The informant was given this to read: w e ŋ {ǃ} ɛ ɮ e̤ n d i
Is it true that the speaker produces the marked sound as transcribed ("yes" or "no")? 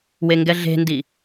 no